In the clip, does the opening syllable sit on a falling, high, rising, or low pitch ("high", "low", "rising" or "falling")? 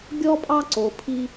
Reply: high